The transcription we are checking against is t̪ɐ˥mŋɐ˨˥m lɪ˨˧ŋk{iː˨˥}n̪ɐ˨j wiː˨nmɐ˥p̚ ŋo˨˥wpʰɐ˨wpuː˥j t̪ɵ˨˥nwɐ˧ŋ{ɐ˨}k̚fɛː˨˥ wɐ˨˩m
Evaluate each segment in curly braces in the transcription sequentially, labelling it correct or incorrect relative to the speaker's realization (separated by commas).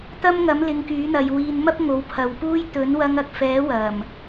incorrect, correct